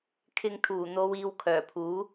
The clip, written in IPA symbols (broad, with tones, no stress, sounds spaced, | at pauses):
kʰ ɪ˧ ŋ t̪ʰ uː˨˩ n̪ o˨˧ w iː˨˧ w kʰ œː˨˩ pʰ uː˨˥